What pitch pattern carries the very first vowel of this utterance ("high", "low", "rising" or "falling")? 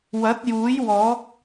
rising